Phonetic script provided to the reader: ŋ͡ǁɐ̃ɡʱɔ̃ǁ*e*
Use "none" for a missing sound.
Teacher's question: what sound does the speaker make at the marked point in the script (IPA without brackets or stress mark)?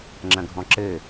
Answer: ɘ